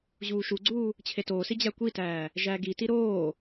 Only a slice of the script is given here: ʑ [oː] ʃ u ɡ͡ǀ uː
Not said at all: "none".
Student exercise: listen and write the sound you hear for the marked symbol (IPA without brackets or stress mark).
uː